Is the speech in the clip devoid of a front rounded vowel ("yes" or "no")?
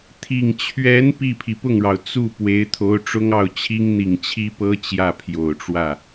yes